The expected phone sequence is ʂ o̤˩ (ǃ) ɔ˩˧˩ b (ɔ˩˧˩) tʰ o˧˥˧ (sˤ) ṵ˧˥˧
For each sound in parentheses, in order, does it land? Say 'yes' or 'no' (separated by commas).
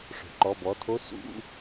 yes, yes, no